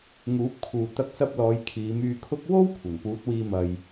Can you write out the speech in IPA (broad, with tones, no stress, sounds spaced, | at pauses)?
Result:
ŋ uː˨˥ p̚ kʰ uː˨ t̪ ɐ˧ k̚ s ɐ˧ p̚ l ɔː˨˧ j kʰ iː˨˧ m yː˧ kʰ ʊ˥ k̚ w o˥ w kʷʰ ɐ˨˩ n p uː˨˥ t̚ w iː˧ m ɐ˨ j